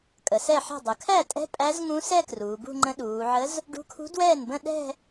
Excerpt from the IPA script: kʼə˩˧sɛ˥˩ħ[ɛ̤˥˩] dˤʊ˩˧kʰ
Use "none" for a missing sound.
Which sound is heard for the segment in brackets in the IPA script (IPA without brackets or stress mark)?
ɛ̤˥˩